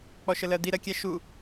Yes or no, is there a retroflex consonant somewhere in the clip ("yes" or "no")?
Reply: no